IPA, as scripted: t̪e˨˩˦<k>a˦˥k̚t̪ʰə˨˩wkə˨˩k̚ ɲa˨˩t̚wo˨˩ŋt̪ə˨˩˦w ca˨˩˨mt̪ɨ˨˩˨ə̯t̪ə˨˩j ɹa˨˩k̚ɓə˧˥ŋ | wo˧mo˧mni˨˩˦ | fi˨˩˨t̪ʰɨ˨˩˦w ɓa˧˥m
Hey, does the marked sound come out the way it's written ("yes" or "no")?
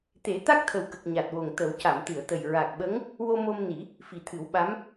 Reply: no